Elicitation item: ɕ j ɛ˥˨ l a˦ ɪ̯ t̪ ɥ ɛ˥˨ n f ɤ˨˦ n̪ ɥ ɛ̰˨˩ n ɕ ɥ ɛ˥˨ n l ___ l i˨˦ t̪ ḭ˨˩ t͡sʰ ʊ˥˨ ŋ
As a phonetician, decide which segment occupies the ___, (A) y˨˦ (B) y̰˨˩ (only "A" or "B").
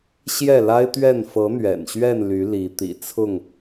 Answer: A